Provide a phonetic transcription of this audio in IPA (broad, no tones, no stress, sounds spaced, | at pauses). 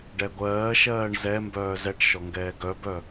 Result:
ɖ ɛ ɡʷ ɜː ʃ ɜː ɳ z ɛ m b œː z ɛ ʈ ʃ ɔ ŋ ɡ ɛː ɡ œ b œ